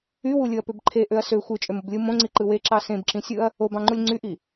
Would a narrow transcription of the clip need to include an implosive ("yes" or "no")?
no